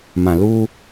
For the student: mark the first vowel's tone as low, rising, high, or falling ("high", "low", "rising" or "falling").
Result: low